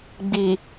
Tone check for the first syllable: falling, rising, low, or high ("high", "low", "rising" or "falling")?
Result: low